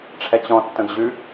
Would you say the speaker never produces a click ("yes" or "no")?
yes